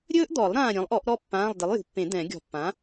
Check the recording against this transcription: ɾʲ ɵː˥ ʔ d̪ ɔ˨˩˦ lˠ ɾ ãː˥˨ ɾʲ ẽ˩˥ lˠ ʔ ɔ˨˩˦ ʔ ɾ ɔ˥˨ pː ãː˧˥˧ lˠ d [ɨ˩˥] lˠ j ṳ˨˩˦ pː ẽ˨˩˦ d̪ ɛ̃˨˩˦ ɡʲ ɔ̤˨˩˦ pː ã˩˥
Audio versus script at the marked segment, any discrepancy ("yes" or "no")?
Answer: yes